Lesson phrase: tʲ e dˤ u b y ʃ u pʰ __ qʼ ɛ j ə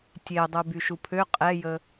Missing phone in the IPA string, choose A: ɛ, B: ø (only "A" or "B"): B